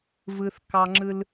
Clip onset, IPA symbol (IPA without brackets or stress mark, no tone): v